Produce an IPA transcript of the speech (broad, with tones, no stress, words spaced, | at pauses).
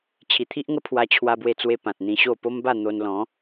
t͡ɕʰi˨˩t̪ʰi˦ʔŋə˦ pʰwa˧t͡ɕʰwa˧bwe˧t͡swe˧ pã˨t̚n̪ĩ˧ɕo˥˧ po˦mba˥˧n̪o˧n lɔ̃˨˦